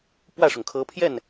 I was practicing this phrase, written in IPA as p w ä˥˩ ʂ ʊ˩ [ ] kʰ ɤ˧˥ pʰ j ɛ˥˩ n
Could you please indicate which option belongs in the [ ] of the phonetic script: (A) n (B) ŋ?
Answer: B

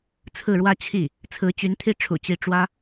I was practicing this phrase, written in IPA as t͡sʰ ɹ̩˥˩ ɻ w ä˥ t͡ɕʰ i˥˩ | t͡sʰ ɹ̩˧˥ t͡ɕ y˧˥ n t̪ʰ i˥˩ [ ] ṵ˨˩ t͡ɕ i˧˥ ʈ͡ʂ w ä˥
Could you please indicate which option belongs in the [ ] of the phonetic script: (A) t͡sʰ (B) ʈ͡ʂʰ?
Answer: B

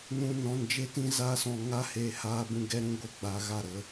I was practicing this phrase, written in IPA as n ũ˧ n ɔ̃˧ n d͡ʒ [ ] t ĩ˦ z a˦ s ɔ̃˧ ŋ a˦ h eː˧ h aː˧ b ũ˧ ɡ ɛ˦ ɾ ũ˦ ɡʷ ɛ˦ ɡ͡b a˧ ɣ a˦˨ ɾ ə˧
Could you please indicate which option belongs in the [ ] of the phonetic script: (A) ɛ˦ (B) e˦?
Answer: B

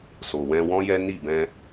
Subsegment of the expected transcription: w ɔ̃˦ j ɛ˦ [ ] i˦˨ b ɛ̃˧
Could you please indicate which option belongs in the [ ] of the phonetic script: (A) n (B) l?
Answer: A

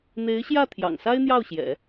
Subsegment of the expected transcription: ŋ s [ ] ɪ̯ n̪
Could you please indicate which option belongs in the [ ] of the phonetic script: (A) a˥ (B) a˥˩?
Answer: A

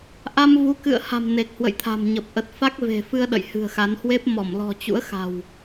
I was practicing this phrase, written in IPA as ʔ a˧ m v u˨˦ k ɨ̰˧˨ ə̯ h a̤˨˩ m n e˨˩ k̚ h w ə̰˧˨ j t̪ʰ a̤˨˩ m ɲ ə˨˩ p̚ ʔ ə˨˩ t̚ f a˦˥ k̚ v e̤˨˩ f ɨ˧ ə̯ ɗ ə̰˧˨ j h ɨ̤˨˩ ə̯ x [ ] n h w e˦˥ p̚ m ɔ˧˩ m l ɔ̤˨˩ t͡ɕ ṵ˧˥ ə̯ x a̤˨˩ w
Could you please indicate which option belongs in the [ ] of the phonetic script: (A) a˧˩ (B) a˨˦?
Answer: B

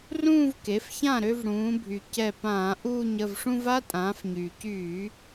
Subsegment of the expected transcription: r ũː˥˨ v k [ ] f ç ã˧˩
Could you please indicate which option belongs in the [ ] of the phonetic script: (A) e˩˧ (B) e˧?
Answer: A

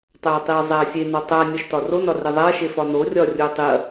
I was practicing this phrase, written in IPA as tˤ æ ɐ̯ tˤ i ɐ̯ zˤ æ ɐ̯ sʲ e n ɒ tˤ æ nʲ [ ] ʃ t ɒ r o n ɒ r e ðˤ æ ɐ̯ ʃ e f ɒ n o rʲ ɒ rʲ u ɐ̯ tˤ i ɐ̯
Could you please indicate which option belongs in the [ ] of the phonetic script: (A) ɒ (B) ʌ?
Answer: A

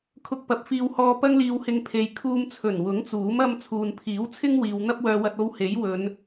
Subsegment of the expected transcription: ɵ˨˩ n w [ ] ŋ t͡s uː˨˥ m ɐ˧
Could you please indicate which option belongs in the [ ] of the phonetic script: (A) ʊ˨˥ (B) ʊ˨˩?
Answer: A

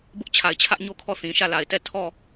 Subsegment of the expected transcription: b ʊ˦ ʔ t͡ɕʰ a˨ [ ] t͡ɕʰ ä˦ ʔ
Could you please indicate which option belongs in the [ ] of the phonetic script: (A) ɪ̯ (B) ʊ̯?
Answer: A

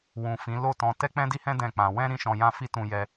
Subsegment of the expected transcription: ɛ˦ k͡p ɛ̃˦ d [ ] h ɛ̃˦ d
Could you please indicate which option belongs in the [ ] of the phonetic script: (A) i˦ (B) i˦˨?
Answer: A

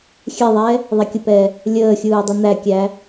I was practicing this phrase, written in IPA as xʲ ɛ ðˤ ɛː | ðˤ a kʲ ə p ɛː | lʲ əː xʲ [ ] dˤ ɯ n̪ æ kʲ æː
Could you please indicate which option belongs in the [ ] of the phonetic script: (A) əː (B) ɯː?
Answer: B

